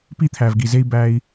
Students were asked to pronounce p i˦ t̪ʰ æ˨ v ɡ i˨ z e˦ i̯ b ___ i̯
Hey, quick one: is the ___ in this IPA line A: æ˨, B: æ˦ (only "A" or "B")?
B